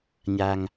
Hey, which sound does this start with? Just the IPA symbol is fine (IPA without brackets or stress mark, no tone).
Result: ɲ